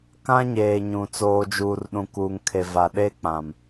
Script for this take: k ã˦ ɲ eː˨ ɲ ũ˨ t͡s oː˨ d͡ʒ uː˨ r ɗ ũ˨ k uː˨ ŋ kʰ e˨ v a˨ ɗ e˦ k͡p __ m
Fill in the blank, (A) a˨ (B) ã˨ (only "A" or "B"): B